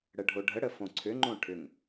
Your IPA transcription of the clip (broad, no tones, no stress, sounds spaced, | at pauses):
ɽ ə ɖʱ o ɖʱ ə ɽ ə f õ ǀʰ ʏ ŋ͡ǃ õ ʈʰ ʏ ŋ